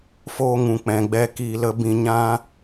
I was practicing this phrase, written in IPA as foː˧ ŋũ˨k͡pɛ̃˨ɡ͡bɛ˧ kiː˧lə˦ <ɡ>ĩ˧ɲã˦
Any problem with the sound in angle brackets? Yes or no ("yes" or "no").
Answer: yes